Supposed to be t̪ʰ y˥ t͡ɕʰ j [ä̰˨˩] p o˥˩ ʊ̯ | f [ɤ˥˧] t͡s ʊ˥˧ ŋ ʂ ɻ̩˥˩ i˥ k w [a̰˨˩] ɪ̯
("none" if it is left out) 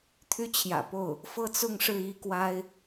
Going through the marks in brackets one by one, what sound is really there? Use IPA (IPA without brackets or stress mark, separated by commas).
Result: ä̰˨˩, ɤ˥˧, a˥